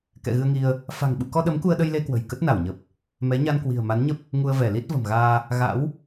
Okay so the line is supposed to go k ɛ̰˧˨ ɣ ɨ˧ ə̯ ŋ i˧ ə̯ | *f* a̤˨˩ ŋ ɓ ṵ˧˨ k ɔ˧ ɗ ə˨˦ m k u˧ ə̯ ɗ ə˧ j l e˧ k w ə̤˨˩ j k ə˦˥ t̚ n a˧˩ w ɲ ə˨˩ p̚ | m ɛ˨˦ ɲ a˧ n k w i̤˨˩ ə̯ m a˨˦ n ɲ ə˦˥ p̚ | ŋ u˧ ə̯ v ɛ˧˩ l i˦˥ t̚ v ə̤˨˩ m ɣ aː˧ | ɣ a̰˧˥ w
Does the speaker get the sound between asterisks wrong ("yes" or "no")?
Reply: no